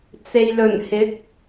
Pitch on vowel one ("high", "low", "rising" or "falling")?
low